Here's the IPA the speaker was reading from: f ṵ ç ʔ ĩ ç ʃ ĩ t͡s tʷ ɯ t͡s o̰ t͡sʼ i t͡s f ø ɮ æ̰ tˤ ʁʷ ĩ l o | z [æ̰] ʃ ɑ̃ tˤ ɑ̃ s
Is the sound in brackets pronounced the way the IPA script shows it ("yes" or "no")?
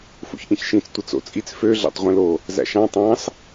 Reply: yes